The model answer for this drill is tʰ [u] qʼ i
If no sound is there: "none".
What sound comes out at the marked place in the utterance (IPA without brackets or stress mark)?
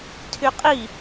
y